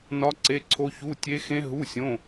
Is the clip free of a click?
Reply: no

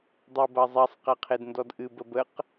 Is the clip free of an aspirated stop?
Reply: no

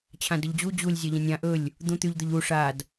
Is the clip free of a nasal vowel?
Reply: no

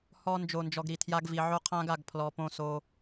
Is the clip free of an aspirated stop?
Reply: no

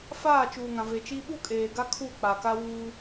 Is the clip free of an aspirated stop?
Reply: no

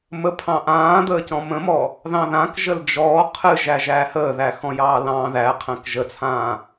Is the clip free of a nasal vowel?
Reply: no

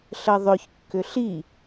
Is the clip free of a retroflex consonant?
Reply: yes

